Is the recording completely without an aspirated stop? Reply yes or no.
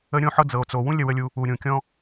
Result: yes